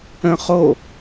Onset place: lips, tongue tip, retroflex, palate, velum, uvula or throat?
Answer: uvula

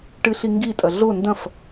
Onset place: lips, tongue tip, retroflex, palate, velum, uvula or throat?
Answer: retroflex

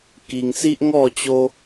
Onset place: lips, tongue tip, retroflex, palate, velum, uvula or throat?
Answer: velum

